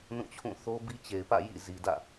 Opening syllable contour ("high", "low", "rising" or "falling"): falling